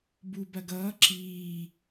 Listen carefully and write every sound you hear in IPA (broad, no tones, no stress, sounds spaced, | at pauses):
b u b ɐ ɡ ʌː ǁ iː